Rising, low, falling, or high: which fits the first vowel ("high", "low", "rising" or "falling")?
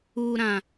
low